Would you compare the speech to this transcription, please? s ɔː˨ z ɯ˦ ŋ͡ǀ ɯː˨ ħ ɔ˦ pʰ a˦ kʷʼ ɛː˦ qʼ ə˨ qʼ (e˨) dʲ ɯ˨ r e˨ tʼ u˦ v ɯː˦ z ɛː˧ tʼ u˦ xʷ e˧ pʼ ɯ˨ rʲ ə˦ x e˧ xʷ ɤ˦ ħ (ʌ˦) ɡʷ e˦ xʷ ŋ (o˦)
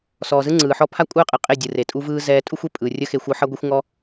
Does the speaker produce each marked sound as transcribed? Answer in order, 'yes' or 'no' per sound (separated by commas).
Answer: no, yes, no